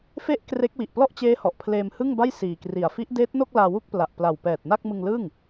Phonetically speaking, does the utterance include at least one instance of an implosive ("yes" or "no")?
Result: no